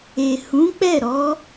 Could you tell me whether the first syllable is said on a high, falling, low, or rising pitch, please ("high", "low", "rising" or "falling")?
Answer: low